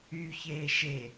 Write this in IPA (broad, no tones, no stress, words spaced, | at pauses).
yçeː ʃe